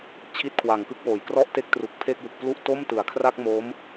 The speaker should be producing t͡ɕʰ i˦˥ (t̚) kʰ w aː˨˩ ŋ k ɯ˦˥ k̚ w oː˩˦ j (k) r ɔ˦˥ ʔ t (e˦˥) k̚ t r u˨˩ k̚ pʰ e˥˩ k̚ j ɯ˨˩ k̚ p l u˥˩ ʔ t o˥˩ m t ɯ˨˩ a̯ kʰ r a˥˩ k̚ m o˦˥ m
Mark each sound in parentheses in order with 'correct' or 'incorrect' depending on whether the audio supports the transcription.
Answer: correct, correct, correct

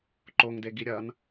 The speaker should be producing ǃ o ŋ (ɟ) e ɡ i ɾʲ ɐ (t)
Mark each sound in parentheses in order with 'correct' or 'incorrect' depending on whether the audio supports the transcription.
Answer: incorrect: d, incorrect: n

